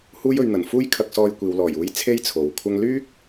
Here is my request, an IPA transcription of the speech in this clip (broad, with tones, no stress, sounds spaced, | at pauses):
h uː˥ j ɵ˧ ɥ n̪ ɐ˨˩ n f uː˥ j kʰ ɐ˧ k̚ s ɔː˧ j kʷ iː˨ w l ɔː˨˩ j uː˨˧ j t͡sʰ e˥ j t͡sʰ o˨˧ w kʷʰ ɐ˥ ŋ l yː˥ k̚